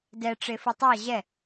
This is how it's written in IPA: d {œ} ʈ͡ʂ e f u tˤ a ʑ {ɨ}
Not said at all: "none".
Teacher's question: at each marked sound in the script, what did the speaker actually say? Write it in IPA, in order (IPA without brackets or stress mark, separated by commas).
ɛ, ɛ